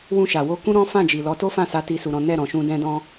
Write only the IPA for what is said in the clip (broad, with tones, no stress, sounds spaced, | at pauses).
w ũ˧ ʃ a˨ w o˧ k ũ˦ ɾ ɔ̃˦ f ã˦˨ d͡ʒ i˨ l ɔ˨˦ t o˦ f ã˦˨ s a˨˦ t i˧ s u˨ ɾ ɔ̃˨˦ n ɛ˦˨ ɾ ɔ̃˨ ʃ ũ˧ d ɛ̃˦ d ɔ̃˦